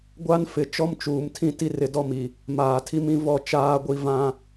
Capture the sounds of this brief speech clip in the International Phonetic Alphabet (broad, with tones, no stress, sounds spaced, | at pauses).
ɡʷ a˦ n f ɪ˨ t͡ʃ ɔ˦ m t͡ʃ uː˨ m tʰ ĩ˦ t i˦ r ɪ˨ d ɔ˦ m i˨ | m aː˨ tʰ i˦ m ĩ˦ v ɔ˦˨ t͡ʃ aː˦ ɡʷ i˦ v ã˦